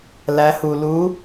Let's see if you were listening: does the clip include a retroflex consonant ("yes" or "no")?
no